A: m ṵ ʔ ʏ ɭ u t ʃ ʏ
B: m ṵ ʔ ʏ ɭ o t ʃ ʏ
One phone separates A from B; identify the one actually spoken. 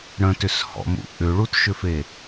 A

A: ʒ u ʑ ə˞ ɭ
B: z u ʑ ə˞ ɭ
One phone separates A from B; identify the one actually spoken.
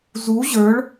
B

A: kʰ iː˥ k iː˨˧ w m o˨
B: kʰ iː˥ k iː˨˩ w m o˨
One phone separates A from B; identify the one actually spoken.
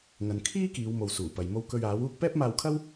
A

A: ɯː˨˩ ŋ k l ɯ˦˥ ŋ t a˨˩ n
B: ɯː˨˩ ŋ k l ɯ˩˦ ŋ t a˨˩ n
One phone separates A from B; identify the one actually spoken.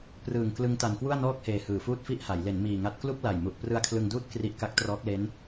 A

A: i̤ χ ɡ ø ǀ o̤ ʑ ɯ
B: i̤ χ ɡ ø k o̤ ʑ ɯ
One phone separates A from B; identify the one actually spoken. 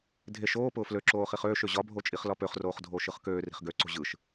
A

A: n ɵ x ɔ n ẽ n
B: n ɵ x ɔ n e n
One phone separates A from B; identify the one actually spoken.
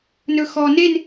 B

